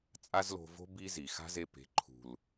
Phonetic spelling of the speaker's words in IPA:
t͡sʼ a˦ z l o̤˧ v o̤˦ b i˦ z i˨ x a̤˦ z e˧ p e̤˨˦ ǃʰ ṳ˨ l

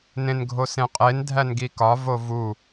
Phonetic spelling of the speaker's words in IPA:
n ẽ n ɡʱ o s ẽ qʼ e n dʱ æ n ɡ i k ɒ v o v u

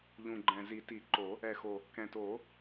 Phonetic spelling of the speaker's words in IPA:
ʎ ũ˨˩ ɡ͡ǃ ɛ̃˨˩ z i˨˩˦ t i˨˩˦ ǃ o˨˩˦ | ɛ˨˩ x o˨˩ | k ɛ̃˨˩ t oː˨˩˦

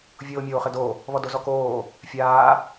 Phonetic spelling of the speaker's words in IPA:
vʲ oː mʲ oː χ ɘ d o | β ɔ d o z ɔ k oː | fʲ aː

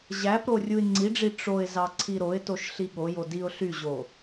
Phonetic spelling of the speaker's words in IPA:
ʑ æ p ɾ o rʲ u ɪ̯ ŋ͡ǀ i ɖ͡ʐ i ʈ͡ʂ o ɪ̯ z ɑ ǀʰ i ɾ o ɪ̯ t o ʃ ɬ i ɠ o j o d i ʊ̯ ɬ y ʑ o

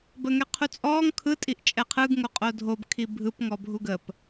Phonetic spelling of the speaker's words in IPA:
b ə ŋ ɛ qʰ u t͡sʼ ɔː ŋ kʰ ɯ tʼ i ʔ t͡ʃʼ ɛ qʰ ɯ ɡ ŋ o qʼ o dʱ o b kʰ i bʱ ɯ p ŋ ɔ bʱ u ɡ ə p

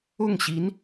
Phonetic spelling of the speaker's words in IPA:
ʊ˥˩ ŋ ɕ i˧˥ n

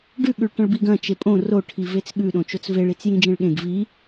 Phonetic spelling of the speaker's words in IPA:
ɖ ʉ ɠ ʉ ɭ ʈ ɐ̃ ɭ b i ɡ ɐ̃ t͡ʃ e pʼ õ r o ʈʰ i v e t͡s ɠ ʉ ɗ õ t͡ʃ o t͡s v e ɭ i t͡s j ĩ d͡ʒ ẽ ɭ ɠ ẽ ɡ v i

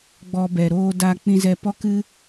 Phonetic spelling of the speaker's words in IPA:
ɡ͡b ɔ˧ b ɛ˨ ɾ oː˧ d a˧ k͡p ĩ˧ z ɛ˧ p ɔ˦ k ɨ˦

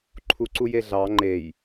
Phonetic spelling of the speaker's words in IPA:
ǃʰ u ǀ u j e ɮ ɑ ŋ͡ǃ e j

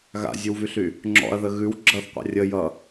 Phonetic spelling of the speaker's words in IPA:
ɣ a̰ zʲ ʉ w v y ɬ y | ŋ͡ǁ ɔ̰ ɐ̯ ð ə ɣ ʉ w ɡ͡ǁ ʌ θ qʷ a̰ rʲ ə j ʌ

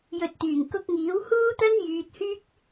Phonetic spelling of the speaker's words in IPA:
j ɵ˨ t̚ t̪ yː˨˩ ŋ k ʊ˧ k̚ ŋ iː˨˥ w h uː˥ t̪ ɐ˥ n j yː˧ t̚ h yː˥ k̚

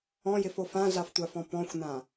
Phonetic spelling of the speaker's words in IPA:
ɔ̃ j ɪ f o f ã ɮ a f tʷ a f ɔ̃ p ɔ̃ xʷ n ã

